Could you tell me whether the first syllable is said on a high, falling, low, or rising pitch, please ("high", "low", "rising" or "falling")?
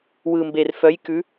low